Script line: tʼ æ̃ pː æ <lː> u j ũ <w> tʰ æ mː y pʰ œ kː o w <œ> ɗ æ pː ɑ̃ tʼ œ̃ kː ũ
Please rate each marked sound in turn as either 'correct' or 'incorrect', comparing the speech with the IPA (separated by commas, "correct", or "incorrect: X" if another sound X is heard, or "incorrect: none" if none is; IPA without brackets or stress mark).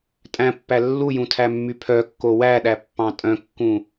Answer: correct, incorrect: none, incorrect: æ